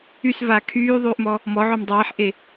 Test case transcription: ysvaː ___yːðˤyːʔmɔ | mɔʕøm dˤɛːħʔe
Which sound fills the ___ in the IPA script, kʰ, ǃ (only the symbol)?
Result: kʰ